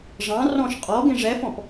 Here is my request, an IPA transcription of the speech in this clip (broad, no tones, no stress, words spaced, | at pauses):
ʐɑ̃rɔ̃ʃ qʼɔ ɡẽʐɛfɔ̃p